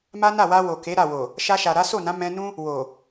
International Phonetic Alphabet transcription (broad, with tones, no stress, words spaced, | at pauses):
ma˦na˦˨wa˧ wo˨ke˨˦ ɾa˦˨wo˨ | ʃa˧ʃa˨ ɾa˨˦so˦˨nã˨˦ mɛ̃˧nũ˦ | wo˨